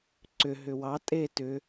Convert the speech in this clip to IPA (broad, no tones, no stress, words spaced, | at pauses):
ǀʏ ɦʏwɑ tʼe tʏ